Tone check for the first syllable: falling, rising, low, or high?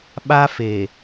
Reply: high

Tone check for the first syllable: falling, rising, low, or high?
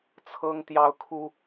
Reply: high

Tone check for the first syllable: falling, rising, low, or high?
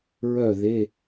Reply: falling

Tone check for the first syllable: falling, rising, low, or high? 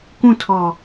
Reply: falling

